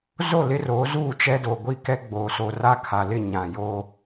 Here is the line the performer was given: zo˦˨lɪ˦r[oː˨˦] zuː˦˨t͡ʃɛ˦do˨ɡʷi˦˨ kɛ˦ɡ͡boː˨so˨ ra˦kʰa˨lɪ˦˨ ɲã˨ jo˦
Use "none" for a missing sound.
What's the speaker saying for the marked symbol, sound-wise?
oː˨˦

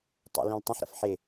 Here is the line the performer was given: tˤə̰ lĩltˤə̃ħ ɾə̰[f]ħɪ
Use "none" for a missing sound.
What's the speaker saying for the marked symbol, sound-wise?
f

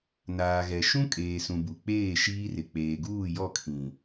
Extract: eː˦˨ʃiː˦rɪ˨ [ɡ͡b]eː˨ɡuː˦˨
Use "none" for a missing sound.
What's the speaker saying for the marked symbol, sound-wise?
k͡p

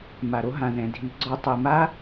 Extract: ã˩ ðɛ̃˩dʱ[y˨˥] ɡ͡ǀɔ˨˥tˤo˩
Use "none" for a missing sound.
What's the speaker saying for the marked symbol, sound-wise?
i˨˥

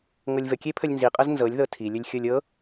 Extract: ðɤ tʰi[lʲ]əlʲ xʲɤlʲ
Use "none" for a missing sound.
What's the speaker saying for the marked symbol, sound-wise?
lʲ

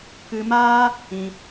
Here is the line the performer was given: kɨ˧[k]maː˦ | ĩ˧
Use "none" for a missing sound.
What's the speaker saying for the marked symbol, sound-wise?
none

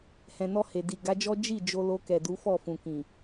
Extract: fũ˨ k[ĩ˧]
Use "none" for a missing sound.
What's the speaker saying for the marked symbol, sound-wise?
ĩ˨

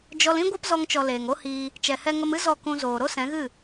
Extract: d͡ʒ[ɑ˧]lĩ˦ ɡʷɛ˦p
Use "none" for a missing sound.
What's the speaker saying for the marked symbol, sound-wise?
ɔ˧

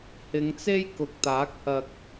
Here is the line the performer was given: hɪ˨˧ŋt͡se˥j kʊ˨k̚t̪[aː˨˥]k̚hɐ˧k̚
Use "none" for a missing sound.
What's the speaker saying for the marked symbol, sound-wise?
aː˨˥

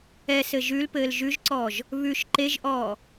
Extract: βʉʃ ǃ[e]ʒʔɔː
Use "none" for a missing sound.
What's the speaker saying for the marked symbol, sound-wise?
e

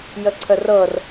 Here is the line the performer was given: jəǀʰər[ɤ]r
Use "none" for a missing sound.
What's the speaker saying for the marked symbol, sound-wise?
ɤ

